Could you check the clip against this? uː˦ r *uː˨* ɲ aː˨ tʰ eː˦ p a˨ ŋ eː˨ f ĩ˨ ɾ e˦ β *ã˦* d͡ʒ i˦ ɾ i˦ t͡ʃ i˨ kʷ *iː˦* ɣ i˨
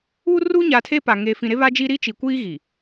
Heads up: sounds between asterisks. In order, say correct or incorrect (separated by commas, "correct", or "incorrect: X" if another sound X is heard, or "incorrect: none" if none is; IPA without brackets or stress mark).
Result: incorrect: uː˦, incorrect: a˦, correct